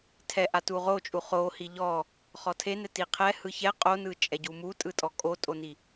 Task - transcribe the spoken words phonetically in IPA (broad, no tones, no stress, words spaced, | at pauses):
tʰɛʔa tuʁot͡ʃʼu χohi ʎɔ | χɔtʰenɛ tiqʰɛ hɯçɛ qʼonɯt͡ʃʼɛ ɟumutʼɯtʼɔ kʼotʼoni